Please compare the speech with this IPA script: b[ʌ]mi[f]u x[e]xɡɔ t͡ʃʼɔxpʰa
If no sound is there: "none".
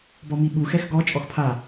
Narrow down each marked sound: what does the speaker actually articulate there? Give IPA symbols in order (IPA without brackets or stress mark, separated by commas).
ɔ, ɓ, ɛ